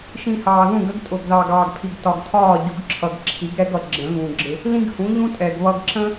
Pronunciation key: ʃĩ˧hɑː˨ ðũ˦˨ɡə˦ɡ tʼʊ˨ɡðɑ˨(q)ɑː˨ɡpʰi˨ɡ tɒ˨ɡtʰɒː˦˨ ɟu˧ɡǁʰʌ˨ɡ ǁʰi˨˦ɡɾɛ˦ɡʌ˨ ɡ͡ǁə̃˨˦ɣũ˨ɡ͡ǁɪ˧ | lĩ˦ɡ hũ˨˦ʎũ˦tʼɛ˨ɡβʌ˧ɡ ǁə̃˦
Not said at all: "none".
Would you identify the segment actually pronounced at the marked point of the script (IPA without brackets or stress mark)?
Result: ɡ